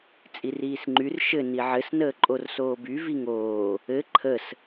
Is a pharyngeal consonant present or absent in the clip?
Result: present